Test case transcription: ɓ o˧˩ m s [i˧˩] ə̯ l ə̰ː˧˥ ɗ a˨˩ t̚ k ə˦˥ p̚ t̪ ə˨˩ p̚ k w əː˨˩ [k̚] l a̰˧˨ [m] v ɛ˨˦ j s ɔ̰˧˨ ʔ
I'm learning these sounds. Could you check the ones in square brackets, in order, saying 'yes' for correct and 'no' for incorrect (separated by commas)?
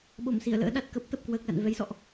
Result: yes, yes, no